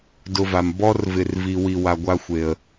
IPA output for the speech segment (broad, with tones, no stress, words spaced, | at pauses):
dʊ˧va˨m bɔ˦rvɪ˨rvi˨ wi˧wa˧ɡʷa˦xʷe˨ə̯